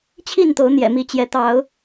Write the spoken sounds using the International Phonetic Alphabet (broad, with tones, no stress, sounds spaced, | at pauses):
t͡ɕʰ i˥˨ n t̪ o˨˦ ʊ̯ n̪ j ɛ̰˨˩ m i˨˦ t͡ɕ j ɛ˨˦ t̪ ɑ˨˦ ʊ̯